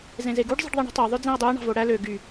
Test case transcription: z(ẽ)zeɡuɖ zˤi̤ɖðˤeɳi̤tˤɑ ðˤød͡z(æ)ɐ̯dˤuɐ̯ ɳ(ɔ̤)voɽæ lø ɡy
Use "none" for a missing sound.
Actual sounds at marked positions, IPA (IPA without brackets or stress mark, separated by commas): ẽ, æ̃, ɑ̤